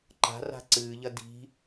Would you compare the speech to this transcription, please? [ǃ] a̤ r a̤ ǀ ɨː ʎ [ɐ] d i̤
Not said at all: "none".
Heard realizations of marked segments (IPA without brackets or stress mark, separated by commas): ǃ, ɐ